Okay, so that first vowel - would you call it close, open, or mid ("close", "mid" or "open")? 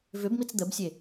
close